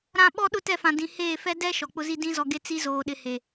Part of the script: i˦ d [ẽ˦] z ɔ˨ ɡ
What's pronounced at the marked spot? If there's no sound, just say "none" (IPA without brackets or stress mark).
ĩ˦